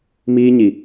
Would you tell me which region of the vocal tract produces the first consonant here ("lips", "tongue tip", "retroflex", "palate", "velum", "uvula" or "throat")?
lips